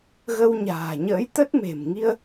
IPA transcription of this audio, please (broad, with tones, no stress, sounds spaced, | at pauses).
ɣ ə˧ w ɲ a̤ː˨˩ ɲ ə̰ː˧˥ j t̪ ə˦˥ t̚ m e̤˨˩ m ŋ i˧ ə̯